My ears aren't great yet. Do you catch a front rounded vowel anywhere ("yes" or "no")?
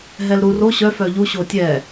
yes